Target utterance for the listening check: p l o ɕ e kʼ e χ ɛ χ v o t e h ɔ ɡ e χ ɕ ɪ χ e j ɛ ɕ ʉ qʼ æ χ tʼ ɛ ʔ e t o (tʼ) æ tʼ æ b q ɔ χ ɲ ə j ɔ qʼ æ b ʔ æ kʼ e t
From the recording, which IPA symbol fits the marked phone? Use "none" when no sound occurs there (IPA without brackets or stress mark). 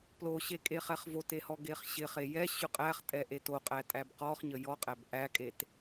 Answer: qʼ